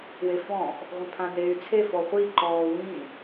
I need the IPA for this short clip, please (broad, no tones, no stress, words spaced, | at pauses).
wefɔ̃ʔ | ʁʷẽpʰãneːy̯t͡sʰe fɔχʷi ǃɔːwĩ